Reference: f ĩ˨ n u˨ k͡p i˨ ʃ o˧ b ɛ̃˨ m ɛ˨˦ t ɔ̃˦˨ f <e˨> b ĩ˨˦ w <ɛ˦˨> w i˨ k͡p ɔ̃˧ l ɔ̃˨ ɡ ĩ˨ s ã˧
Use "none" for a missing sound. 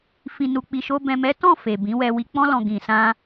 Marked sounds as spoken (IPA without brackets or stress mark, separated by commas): e˨, ɛ˧